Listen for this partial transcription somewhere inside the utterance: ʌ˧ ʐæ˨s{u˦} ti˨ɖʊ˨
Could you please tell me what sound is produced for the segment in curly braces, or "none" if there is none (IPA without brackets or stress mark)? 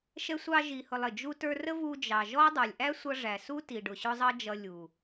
u˦